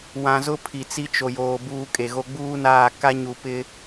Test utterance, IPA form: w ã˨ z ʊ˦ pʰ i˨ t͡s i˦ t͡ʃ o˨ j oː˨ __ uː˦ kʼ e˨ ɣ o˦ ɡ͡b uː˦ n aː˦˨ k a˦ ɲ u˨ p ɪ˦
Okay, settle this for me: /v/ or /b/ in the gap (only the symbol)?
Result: b